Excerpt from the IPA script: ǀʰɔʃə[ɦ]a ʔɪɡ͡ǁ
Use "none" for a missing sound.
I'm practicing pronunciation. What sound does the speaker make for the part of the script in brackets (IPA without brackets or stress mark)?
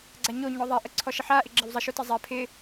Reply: ħ